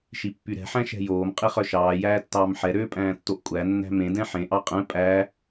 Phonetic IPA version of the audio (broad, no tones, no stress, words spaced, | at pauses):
ʃipːyɾɛ̤ ħæ̃ʃɛ̤joːm qʼiχœʃɑː jæːtːɑːmħɛ ɾøːpʼæ̃ːtːoʔkʷʼæ nːæ̤mẽ dɛ̃ħẽ ʔɑqʼɛ̃ pʼæ